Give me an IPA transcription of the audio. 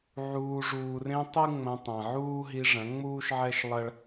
ʕuː˨ʐuː˨rẽ˧ tˤɨ˦ ŋ͡mɐ̃˧ tˤɐ̃˨ʕuː˦ɦi˧ ʐɐ̃˨˦ŋ͡muː˦ʃʕɛ˦ʃ lˠɐ˦ɭ

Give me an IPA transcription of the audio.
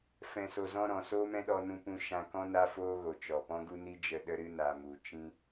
fɛ̃˨so˨zɔ̃˧ ɾɔ̃˨ soː˦mɛ̃˦ɗɔ˧nũ˧ pũ˦ʃã˦ kɔ̃˦na˦foː˦ɣo˨ t͡ʃɔ˨pɔ̃˦ ɡu˦ni˦d͡ʒə˧ ɗə˦ɾɨ˦ na˧mu˧ t͡ʃĩ˦

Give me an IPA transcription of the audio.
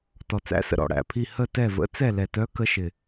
tɔ˨t͡sæ̰˧˥sə̰˨ ɾɔ̰˨ɽæ̰˨pʰi˦˨ hə˦˨tɛ˦˨və̰˧˥ t͡sɛ˦˨lɛ˨tœ˧˥ kə˧˥ʃɪ˨

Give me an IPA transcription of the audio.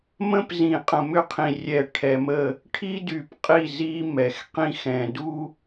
mə̃˦p zĩ˨qʼə̃˨mʏ˦qʰĩ˨ rʲɛ˨ʈʰɛ˨mə˦˨ | ʈʰi˦dy˨pqʼi˦˨ zi˦ mɛ˨xqĩ˦xɛ̃˨du˦

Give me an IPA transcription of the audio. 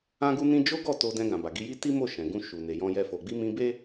ã˦ɡu˦nĩ˦ d͡ʒo˦ɡɔ˦˨ to˧dɛ̃˧ɡã˨ba˨ ɡi˨˦ji˦ ti˦mo˦˨ʃɛ̃˨ ɡũ˧ʃu˨ ne˨jɔ̃˧jɛ˧ fo˨ɡ͡bi˧mĩ˧ be˦

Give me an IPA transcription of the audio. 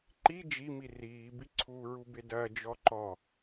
ǃi d͡ʒimi riːbiǀʰuː ɹubedɐː d͡ʒɔǃɔ

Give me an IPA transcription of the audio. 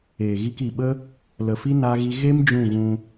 eː˨ɣi˧ki˨ɓə˦ | lə˨fi˦ na˦ɣi˦ ɣe˦m d͡ʒũ˦˨ɣũ˧

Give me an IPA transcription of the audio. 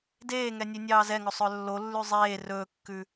deːŋɛ nʲʉnʲɑːzɛŋɵ sˤœlːolːʉ zˤeː rɵːkːʉ

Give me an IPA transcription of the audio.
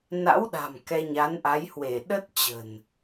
na̰˧˥w ɗa̤˨˩m kɛ˧ɲa˨˦nʔa˨˦jhwe˧˩ ɗə˦˥t̚ t͡ɕə̤˨˩n

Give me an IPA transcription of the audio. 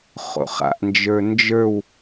χo̰χa̰ʔnd͡ʒə˞ nd͡ʒə˞w

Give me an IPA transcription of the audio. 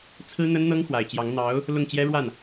t͡sʰɹ̩˥n̪ə˥nn̪ɤ˥ŋ xwa˨˩ɪ̯t͡ɕjɑ˧˥ŋ n̪ɑ˧˥ʊ̯ | lʊ˥˩ŋt͡ɕjɛ˥ɻwa˥˩n

